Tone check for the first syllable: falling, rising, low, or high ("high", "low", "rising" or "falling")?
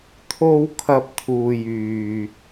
high